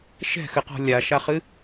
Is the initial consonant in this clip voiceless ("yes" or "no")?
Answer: yes